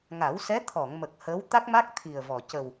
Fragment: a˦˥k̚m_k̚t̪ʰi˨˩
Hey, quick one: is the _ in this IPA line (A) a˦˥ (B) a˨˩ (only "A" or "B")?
A